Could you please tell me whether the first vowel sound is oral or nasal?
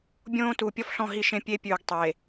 nasal